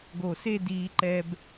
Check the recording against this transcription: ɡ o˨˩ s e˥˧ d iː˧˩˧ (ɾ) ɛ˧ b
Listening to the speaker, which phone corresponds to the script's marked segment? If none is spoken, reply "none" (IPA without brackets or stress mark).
ǃ